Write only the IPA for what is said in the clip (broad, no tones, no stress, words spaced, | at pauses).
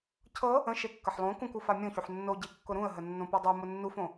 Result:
cʰɤ | ə̃ ʃekːəħlˠõ kũkufa mʲõçuħ nːoɟekːʊ ɾũə̯ɦə nːõpɤdˤu mʊnːufõ